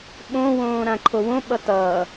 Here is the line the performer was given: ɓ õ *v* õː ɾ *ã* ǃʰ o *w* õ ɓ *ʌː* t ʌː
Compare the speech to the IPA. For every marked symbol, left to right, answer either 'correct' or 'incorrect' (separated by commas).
incorrect, correct, correct, incorrect